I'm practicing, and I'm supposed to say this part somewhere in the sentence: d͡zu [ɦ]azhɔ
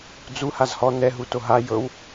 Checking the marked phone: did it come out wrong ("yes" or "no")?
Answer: yes